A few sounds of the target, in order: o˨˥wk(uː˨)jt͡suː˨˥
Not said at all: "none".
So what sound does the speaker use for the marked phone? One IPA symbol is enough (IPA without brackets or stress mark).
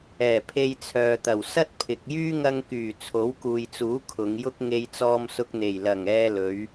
uː˨